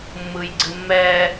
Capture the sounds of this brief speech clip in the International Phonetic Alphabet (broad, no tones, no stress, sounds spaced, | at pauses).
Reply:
mː ɯ j ɡ͡ǀ ɨ mː ɛ